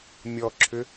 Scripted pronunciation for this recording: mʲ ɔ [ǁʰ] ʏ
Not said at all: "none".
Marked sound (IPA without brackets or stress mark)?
ǁʰ